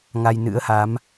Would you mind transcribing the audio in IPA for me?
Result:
ŋ a˧ j n ɨ̰˧˥ ə̯ h a˨˦ m

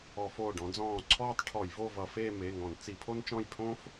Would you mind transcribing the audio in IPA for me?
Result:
ɔ˧˩˧ f oː˧˩ ɖ ɔ̃˨˦ d͡z ɔ̃ː˧˩ ǀʰ ɔː˥ tˤ ʈʰ ɔ˧˩˧ j v o˥˧ v ʌ˧˩˧ f eː˥˧ m e˩˧˩ ŋ ɔ̃˧˩˧ n t͡s i˧˩˧ pʰ o˥ n t͡ʃ ɔ̃˥˧ j pʰ õː˥ f

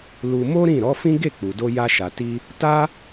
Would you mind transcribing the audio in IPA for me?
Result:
l u˧ m o˦ ɾ ĩ˦˨ ɾ ɔ˨˦ f ĩ˦ ɡ e˦˨ k͡p u˨ d o˧ j a˦ ʃ a˧ t i˦ | t a˦

